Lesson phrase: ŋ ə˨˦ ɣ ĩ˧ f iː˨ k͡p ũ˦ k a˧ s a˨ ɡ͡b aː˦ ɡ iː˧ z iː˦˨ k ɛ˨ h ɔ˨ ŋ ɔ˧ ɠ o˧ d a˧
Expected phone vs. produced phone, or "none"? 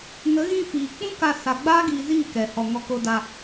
ɠ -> k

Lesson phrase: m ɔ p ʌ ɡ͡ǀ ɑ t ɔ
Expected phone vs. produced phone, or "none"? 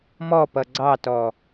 none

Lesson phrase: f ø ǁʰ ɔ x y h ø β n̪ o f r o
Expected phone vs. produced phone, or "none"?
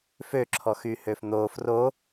β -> f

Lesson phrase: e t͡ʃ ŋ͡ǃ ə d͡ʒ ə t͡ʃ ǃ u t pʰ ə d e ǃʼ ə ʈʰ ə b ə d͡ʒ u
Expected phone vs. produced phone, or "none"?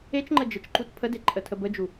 ʈʰ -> tʰ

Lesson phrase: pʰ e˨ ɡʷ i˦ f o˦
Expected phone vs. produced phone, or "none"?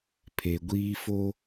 i˦ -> iː˦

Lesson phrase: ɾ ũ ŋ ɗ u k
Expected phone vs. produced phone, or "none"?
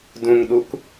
ɾ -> d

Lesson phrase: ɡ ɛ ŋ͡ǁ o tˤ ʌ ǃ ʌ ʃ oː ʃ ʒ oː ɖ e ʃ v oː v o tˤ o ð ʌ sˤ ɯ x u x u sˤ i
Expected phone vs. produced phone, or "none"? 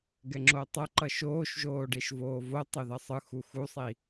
none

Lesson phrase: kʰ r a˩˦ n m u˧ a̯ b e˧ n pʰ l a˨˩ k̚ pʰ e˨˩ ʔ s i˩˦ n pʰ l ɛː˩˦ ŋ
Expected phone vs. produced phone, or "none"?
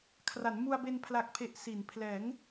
none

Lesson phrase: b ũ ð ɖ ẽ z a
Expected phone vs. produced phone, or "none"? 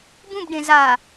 ð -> b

